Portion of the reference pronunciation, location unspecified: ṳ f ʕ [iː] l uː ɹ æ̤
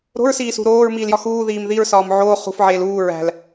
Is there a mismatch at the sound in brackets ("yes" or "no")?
yes